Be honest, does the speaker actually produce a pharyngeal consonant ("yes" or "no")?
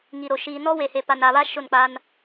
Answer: no